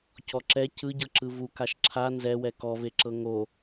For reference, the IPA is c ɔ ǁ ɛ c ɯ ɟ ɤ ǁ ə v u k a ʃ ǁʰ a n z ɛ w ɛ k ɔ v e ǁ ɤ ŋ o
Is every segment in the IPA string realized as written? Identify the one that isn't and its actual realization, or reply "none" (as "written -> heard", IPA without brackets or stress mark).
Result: ə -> ɯ